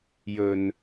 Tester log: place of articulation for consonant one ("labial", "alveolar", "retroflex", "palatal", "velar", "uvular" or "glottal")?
palatal